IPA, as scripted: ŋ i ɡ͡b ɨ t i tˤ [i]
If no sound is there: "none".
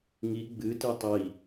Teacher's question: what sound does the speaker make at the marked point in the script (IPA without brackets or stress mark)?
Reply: i